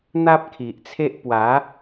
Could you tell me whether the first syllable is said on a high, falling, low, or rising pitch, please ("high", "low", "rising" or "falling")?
high